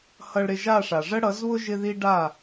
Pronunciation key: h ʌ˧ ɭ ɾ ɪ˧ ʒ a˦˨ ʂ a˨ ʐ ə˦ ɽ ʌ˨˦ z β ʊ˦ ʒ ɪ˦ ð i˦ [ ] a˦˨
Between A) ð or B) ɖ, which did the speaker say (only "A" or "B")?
B